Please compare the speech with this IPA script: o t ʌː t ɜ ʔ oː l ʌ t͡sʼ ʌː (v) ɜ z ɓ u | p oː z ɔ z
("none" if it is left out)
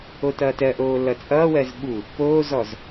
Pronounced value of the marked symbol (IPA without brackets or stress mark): w